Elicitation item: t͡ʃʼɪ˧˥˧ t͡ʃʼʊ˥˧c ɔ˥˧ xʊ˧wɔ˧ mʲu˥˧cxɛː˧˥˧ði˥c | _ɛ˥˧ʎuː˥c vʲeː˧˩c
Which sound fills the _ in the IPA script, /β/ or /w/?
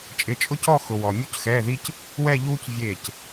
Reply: w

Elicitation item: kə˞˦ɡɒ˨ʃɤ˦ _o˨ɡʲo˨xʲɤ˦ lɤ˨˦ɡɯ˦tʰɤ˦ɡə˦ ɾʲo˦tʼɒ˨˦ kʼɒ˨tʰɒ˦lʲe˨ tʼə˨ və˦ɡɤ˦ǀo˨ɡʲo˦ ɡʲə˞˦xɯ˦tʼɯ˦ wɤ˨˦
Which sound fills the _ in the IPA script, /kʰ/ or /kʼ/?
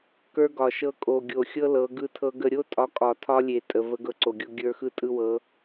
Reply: kʼ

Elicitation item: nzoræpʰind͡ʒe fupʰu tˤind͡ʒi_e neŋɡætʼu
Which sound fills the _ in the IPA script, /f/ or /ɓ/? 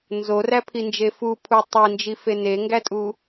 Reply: f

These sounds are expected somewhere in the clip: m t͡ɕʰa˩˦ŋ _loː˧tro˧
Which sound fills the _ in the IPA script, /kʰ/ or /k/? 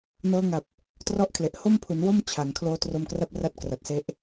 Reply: kʰ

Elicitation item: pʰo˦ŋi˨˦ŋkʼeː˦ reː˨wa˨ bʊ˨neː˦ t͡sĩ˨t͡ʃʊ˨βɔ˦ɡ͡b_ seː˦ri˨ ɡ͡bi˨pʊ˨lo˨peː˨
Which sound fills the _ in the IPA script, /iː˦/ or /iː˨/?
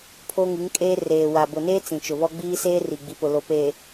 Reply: iː˦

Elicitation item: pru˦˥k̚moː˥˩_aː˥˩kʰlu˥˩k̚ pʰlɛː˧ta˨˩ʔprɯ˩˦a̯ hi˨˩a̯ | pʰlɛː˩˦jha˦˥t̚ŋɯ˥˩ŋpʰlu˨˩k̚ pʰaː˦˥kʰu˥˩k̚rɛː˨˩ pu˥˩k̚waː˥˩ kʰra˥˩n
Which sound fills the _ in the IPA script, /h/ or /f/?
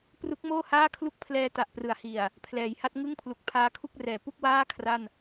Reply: h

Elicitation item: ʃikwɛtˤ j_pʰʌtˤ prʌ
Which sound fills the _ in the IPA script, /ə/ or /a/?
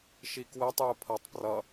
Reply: ə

